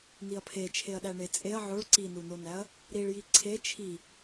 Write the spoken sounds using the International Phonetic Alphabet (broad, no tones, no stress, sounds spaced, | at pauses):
n i ɐ̯ pʰ e t͡ʃʰ e ɐ̯ ɗ æ ɳ e t͡sʼ e ɐ̯ ʕ o ɭ ǀ i n u n o n æ ɐ̯ | ɾ i ɭ j i ǀʰ e t͡ʃʰ i